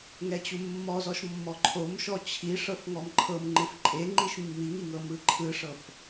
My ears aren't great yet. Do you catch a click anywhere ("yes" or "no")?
yes